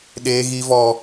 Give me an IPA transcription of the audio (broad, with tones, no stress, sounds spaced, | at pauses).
ɗ eː˦ ɣ i˦ v ɔ˦